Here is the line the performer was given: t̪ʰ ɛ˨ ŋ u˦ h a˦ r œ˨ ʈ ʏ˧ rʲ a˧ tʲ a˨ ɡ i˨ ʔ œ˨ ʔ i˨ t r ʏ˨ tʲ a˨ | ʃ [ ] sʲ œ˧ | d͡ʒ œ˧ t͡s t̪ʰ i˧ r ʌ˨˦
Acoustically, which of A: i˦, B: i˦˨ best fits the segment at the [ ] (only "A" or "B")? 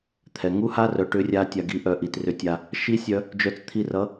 A